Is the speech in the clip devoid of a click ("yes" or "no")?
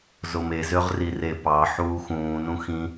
yes